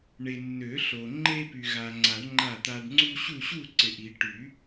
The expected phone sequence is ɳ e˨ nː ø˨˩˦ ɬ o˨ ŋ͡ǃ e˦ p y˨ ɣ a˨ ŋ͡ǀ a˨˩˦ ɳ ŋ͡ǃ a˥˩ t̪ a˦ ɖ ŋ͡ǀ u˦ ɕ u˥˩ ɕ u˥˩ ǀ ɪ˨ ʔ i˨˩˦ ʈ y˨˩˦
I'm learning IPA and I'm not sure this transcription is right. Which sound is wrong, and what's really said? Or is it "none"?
none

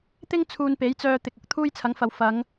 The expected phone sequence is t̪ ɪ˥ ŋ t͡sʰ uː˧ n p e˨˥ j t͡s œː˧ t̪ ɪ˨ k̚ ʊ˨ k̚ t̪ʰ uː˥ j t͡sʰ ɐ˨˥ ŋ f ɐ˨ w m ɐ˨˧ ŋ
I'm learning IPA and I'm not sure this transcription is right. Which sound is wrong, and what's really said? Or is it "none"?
m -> f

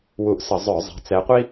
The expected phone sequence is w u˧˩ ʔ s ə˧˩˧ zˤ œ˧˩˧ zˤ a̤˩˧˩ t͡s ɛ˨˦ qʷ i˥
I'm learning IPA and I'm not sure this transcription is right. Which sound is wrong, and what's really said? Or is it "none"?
none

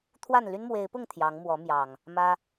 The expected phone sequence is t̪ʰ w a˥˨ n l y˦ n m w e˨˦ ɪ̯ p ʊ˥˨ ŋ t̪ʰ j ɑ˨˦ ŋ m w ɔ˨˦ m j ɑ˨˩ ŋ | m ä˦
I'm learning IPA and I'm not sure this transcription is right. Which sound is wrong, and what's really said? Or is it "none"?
none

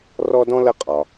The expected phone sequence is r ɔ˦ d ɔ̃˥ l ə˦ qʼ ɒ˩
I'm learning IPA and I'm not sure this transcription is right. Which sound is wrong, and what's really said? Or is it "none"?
none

